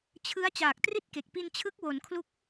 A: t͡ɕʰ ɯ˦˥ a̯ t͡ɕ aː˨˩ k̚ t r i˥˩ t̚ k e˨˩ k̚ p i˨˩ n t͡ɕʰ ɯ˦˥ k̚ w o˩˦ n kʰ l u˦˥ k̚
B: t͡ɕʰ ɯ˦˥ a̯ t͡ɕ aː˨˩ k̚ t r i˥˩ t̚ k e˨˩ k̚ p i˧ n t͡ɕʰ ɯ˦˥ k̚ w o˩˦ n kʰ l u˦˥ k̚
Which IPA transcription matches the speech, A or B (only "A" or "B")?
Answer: B